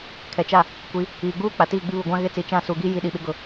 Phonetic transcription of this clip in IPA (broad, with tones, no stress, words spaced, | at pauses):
kʰɛ˨t͡ʃa˦˨ | kʷi˨˦ | iː˨ɡ͡buː˦ k͡pa˨tiː˦˨ɡ͡bi˦ βu˨ɡʷã˦ ɣɪ˦t͡si˨ t͡ʃã˦˨su˨ɡi˦ ji˦ɗi˨ ɓɪ˦ɡʊ˨